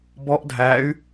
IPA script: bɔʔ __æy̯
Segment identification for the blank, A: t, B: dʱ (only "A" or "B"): B